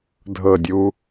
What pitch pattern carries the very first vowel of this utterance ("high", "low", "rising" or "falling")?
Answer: falling